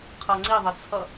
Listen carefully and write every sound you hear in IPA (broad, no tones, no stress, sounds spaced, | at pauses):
qʰ ʌ ŋ͡ǀ i ðˤ ə t͡sʰ ʌ